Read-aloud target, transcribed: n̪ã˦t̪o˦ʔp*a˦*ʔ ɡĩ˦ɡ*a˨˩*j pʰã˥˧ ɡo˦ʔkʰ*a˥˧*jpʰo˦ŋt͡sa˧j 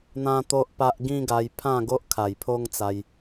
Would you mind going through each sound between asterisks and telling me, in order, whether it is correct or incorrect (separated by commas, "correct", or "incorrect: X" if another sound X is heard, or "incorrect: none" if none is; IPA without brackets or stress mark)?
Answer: correct, incorrect: a˧, incorrect: a˨˩